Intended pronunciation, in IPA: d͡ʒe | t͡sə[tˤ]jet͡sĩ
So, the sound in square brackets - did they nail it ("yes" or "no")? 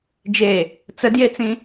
no